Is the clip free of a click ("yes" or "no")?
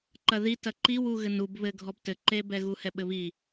no